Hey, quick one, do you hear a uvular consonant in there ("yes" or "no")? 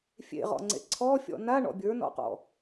yes